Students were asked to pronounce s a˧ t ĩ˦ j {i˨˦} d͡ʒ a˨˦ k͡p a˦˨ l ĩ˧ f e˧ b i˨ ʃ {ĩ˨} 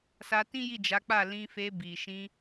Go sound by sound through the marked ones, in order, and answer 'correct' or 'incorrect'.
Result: incorrect: i˦˨, incorrect: ĩ˧

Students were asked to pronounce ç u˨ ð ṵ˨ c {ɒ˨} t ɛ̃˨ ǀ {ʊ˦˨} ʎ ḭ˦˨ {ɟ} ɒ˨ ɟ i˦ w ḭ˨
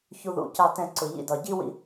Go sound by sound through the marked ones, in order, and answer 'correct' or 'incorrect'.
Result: incorrect: ɑ˨, incorrect: ʊ˨, incorrect: d

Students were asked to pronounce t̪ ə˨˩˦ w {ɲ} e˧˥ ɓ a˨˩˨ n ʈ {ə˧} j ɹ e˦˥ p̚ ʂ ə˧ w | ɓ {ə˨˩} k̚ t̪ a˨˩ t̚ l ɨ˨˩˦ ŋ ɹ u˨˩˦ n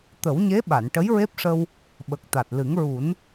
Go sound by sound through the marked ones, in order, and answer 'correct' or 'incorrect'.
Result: correct, incorrect: ə˧˥, correct

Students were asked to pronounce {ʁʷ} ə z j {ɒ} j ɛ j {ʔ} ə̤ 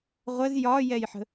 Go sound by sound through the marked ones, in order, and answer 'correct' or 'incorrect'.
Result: correct, correct, incorrect: ħ

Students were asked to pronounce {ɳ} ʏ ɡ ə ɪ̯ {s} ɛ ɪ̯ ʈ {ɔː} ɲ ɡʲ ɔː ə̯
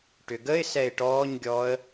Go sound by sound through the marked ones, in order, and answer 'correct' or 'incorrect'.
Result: incorrect: ʈ, correct, correct

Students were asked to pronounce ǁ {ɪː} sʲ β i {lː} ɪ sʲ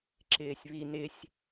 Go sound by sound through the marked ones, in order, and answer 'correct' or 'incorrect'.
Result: correct, incorrect: n

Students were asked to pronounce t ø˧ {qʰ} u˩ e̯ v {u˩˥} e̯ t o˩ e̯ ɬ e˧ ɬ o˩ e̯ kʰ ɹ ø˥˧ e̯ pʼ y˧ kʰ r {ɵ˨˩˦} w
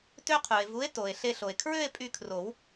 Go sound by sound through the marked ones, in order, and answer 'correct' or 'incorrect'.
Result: correct, correct, incorrect: o˨˩˦

